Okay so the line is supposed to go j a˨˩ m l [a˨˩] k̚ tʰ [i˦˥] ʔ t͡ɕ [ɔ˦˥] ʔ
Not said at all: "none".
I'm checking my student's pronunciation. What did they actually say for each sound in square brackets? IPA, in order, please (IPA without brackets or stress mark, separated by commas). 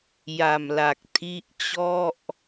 a˨˩, i˦˥, ɔ˥˩